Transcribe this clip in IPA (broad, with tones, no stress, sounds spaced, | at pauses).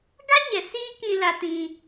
ɡ a˦ ɲ ɛ˨ s iː˦ k ĩ˧ l a˧ t ĩ˧